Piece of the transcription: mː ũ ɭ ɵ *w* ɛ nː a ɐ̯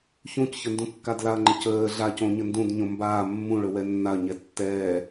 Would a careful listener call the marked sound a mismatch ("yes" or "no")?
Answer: no